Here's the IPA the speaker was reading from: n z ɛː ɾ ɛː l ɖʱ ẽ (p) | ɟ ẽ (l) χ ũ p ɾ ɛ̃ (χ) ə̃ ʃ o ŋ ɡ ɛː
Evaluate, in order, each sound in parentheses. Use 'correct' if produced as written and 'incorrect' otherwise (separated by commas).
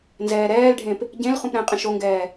correct, correct, incorrect